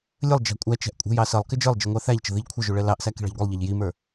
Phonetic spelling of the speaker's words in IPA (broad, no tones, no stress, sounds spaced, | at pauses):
lʲ ə lˠ d͡ʒ ɑ̤ kʷʼ æ t͡ʃ æ̤ ʔ kʷʼ ɛ̤ j ɑ s ʌ lˠ k ɪ d͡ʒ ə˞ lˠ d͡ʒ i ŋʷ ɑ θ æ ʎ t͡ʃ ə̤ ð i ʎ kʷʰ ə ʒ u ɭ ɛ l ɑ ʔ s æ k i̤ ɭ ɑ̤ ʎ ɡʷ ɛ lˠ ʎ ɑ ʎ j i m ə˞